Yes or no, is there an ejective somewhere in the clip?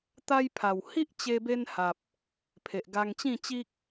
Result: no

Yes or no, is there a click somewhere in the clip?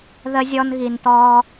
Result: no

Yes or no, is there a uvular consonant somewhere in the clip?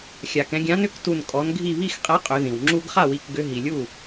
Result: yes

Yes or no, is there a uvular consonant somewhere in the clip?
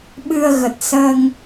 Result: no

